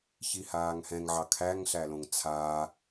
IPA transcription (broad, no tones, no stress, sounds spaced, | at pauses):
ç i h aː ŋ h ɛ̃ ŋ ʕ ɑ kʰ æ ŋ ɬ æ l õ ŋ t͡sʰ aː